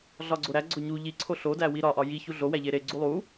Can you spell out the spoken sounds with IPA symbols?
ɮ ɒ ɡ͡ǀ o ɾ æ ɡ͡ǀ o ɲ u ʎ i ǀʰ o ɬ o d æ w i ɾ ɒ ʔ ɒ j i ç u ɮ o w æ ʎ e ɾ e ɡ͡ǀ u lˠ u

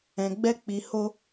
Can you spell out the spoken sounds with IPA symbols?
ɛ̃˨ ɡ͡b ɛ˧ k͡p i˨ h o˧

